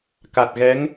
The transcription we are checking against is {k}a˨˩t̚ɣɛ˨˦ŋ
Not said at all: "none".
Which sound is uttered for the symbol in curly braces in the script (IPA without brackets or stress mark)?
k